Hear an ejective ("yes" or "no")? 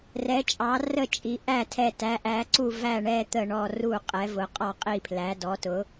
yes